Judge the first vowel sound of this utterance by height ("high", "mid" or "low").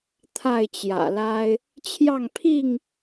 low